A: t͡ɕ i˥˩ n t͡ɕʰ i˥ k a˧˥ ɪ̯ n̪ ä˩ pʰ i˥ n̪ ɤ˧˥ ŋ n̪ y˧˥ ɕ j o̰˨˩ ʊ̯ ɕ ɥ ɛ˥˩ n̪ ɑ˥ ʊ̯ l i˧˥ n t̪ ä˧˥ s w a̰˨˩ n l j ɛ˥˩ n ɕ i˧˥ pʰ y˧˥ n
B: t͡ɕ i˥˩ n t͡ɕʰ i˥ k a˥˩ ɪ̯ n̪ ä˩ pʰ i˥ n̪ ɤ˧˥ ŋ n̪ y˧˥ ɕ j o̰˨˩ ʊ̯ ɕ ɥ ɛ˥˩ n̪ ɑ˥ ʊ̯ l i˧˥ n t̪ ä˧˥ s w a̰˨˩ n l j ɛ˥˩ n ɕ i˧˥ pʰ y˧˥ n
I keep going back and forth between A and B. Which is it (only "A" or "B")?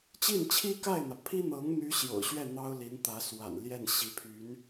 B